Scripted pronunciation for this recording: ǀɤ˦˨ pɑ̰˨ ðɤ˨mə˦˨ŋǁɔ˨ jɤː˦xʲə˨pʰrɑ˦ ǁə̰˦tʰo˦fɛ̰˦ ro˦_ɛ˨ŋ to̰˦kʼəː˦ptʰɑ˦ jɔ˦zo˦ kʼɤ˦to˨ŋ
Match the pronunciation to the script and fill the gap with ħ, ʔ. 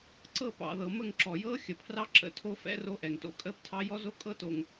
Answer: ʔ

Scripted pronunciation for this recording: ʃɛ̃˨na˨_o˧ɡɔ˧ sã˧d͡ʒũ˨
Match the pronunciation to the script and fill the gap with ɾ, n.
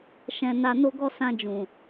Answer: n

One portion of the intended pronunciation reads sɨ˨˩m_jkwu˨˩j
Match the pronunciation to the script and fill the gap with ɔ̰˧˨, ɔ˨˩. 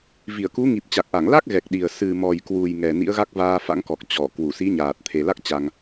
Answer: ɔ˨˩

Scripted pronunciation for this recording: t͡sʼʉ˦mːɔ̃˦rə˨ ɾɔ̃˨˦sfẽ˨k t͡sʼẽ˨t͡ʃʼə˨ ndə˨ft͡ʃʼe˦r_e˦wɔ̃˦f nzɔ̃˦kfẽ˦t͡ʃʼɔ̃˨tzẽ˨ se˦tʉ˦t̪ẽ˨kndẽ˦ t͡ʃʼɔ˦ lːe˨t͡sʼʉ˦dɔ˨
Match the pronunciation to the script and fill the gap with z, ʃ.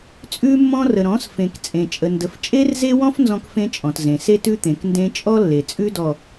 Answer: z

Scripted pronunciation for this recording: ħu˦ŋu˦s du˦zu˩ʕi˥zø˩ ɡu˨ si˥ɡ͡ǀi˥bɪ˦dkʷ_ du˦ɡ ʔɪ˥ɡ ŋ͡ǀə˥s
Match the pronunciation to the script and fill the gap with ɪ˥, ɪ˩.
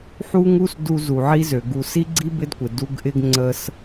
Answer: ɪ˩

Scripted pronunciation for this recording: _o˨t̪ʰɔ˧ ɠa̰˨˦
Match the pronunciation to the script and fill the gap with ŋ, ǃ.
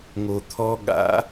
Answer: ŋ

